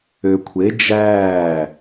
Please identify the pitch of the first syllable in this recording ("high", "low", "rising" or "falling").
low